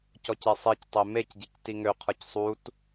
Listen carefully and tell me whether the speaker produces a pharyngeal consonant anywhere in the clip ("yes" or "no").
no